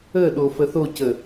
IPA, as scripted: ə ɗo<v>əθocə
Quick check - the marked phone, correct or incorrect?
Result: incorrect